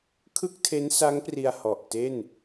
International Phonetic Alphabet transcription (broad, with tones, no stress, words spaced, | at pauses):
kʰɯ˥˩k̚tʰe˦˥n sa˦˥ŋpri˧a̯ hɔ˨˩ʔ te˥˩n